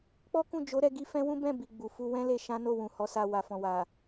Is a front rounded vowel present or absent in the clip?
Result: absent